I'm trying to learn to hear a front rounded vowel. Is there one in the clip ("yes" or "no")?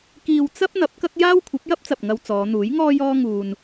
no